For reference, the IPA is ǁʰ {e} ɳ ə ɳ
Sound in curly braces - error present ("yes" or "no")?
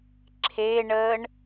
no